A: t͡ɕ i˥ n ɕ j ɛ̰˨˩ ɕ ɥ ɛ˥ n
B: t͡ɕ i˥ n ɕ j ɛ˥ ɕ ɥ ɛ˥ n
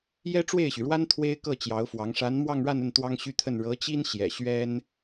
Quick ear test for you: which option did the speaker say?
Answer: A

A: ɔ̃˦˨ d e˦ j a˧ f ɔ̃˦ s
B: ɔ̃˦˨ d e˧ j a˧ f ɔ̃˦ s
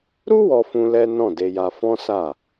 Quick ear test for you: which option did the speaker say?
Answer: B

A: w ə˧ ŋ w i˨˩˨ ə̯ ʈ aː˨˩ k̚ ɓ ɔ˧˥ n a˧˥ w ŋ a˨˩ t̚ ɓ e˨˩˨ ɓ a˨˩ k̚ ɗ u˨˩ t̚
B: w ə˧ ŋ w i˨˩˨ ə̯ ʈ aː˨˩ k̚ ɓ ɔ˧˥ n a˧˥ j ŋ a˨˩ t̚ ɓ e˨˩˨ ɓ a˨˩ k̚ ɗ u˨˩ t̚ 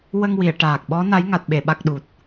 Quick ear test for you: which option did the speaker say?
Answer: B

